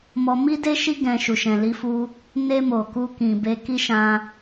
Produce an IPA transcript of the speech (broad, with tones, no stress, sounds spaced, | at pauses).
m ɔ˧ m i˦ d e˦ ʃ i˦ ɡ ɛ̃˧ ʃ u˨ ʃ ɛ̃˨ l i˧ f u˧ | n e˧ m o˨ k u˧ k ĩ˨ b e˧ k i˦ ʃ ã˧